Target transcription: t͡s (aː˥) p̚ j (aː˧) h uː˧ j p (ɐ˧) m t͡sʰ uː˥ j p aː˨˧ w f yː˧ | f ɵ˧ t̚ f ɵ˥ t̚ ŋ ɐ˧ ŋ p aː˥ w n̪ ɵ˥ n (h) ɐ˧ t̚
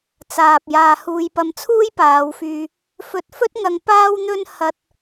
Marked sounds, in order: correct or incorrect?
incorrect, correct, correct, correct

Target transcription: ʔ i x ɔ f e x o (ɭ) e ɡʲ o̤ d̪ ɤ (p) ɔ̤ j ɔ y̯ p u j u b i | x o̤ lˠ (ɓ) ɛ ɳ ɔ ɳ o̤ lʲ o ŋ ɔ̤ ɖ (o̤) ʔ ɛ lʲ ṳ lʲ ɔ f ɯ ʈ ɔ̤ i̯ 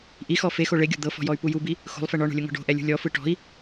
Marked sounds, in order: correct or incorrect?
correct, incorrect, incorrect, correct

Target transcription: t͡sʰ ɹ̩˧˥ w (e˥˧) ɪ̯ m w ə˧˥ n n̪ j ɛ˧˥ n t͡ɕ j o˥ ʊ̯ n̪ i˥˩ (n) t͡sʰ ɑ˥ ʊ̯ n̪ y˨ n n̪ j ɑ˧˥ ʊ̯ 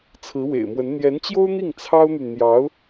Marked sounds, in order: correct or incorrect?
incorrect, incorrect

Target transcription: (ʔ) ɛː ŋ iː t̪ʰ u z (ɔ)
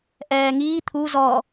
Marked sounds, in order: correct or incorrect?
correct, correct

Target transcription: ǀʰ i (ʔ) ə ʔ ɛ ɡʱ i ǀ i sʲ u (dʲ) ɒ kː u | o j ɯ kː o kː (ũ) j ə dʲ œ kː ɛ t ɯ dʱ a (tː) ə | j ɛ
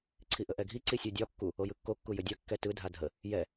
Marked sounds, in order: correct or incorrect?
correct, correct, incorrect, incorrect

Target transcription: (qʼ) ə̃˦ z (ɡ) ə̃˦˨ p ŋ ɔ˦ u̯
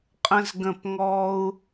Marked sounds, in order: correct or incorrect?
correct, correct

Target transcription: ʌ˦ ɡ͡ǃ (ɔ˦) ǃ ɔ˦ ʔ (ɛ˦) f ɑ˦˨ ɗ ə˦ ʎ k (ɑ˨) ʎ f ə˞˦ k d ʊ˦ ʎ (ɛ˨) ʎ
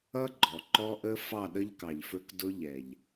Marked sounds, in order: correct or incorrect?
incorrect, incorrect, correct, correct

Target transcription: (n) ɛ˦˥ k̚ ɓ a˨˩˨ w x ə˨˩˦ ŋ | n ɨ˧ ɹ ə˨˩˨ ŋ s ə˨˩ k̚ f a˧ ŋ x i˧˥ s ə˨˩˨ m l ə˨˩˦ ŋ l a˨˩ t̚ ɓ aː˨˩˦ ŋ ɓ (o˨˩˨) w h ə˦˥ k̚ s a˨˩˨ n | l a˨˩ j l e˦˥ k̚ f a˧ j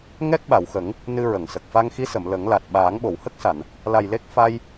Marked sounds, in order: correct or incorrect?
incorrect, correct

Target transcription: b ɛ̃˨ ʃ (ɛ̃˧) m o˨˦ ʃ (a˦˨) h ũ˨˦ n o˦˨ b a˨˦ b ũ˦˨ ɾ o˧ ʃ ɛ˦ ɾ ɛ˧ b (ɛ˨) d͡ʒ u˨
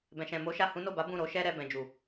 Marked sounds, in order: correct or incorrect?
incorrect, correct, incorrect

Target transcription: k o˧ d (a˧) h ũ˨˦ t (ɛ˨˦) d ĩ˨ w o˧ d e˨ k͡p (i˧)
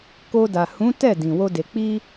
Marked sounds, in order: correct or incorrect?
incorrect, incorrect, correct

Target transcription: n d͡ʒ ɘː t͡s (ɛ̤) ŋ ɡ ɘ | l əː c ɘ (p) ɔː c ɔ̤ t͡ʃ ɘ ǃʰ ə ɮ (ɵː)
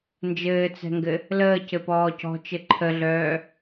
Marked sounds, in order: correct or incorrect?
correct, correct, incorrect

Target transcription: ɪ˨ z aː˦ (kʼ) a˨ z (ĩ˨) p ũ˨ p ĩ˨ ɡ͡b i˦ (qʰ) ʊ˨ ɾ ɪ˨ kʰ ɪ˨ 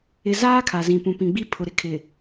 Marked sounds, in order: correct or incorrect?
incorrect, correct, incorrect

